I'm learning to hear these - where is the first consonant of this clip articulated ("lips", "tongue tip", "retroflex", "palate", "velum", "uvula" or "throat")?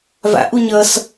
lips